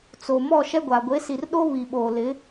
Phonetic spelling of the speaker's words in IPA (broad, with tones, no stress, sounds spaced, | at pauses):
t͡s o˨ m ɔ˦˨ ʃ ɛ˦ ɡʷ a˨ ɡʷ e˨˦ s i˨ r ɗ o˦ β i˨ ɓ oː˨ l ɪ˨˦